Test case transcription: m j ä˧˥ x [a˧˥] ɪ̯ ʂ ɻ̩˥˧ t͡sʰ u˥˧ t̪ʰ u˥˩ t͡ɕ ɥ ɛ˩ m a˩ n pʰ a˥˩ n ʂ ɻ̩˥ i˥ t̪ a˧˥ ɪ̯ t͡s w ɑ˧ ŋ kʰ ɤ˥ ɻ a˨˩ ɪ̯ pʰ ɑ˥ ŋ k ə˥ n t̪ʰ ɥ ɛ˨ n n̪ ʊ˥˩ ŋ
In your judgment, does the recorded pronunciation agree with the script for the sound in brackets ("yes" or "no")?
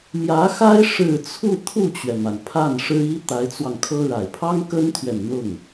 no